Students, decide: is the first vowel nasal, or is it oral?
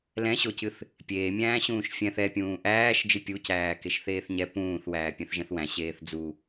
nasal